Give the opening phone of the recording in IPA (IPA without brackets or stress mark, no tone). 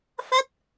f